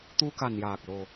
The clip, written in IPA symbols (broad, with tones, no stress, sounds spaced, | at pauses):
t̪ u˧ k a˨˩ n j aː˨˩ k̚ l o˨˩